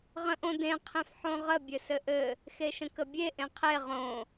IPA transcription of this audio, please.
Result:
ʁ ə̃ ʔ õ d ẽ qʰ ẽ f ħ õ ʁ ə bʲ ɘ s ɘ ʔ ɘ | x e ʃ ə̃ k ə bʲ e ʔ ẽ qʰ e ʁ õ

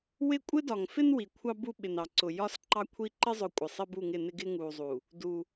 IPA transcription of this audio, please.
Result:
w ɪ˦˨ kʷʼ ɪ˦ d ɒ˨ ŋ f ɪ˦ n w i˨ kʷʰ ɑ˦ b u˦ ɓ ɪ˨ n ɑ˨ ǀ ʊ˨ j ɒ˦ s ǃ ɑ˦ kʷʰ i˦ ǃ ɪ˦ zˤ ʊ˨ kʷʼ ɪ˨ sˤ ɪ˦ b u˦˨ ŋ ɪ˦˨ n ɪ˦ ɡ ɪ˦ ŋ u˨ zˤ u˨ | d u˦

